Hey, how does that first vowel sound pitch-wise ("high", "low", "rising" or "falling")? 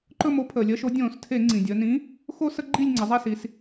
falling